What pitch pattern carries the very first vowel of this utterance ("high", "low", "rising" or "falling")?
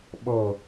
falling